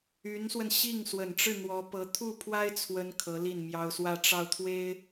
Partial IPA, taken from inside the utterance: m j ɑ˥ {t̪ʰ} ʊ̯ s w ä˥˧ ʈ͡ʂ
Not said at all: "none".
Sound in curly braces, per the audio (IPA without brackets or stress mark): none